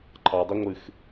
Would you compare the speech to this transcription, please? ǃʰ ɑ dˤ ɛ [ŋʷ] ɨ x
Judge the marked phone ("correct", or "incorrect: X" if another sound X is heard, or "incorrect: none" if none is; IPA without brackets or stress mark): correct